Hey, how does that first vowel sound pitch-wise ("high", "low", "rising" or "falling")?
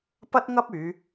high